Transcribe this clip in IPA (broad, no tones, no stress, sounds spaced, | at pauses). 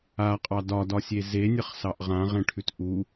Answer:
a qʼ ɑ d ɒ d ɒ sʲ e z e nʲ ə χ s ɑ ʔ ʁ ã ʁ ẽ ʈʰ ʉ t ʔ u